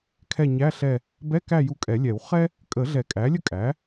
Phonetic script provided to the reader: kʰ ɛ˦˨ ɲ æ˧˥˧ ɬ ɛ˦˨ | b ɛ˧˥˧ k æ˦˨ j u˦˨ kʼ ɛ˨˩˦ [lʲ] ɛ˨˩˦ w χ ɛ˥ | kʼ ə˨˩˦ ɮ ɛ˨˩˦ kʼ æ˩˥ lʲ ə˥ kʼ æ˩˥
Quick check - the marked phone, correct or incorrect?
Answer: correct